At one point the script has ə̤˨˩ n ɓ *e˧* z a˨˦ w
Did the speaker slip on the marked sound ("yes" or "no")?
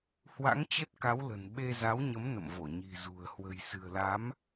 no